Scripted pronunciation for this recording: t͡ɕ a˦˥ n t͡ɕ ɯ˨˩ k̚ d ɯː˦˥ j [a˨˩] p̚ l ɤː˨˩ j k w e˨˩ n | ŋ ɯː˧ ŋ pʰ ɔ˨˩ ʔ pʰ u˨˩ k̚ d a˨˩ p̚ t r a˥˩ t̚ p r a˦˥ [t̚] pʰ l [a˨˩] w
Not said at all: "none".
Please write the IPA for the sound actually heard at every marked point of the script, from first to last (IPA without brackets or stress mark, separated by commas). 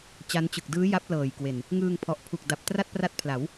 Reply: a˦˥, t̚, a˩˦